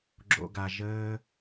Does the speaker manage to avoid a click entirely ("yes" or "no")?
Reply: no